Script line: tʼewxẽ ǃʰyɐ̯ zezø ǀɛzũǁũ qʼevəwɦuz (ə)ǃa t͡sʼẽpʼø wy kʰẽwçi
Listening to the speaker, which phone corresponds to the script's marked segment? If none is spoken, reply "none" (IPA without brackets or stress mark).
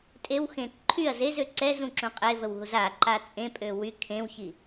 a